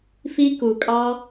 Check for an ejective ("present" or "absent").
present